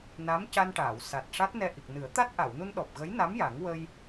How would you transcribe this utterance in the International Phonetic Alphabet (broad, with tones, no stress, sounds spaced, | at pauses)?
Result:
n a˧˥ m c a˧ n ʈ aː˨˩˨ w s a˨˩ t̚ ʂ a˦˥ t̚ n ɛ˧ ʔ i˨˩ k̚ n ɨ˨˩˦ ə̯ t̪ a˦˥ t̚ ʔ a˨˩˨ w n u˧ n ɗ ɔ˨˩ p̚ ɣ ə˧˥ j n a˧˥ m j a˨˩˦ ŋ w ə˧ j